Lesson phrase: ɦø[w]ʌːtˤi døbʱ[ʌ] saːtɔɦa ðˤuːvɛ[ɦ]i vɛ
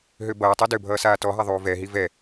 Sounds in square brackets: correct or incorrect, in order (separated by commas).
incorrect, incorrect, correct